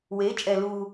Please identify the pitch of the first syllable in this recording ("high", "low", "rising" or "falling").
rising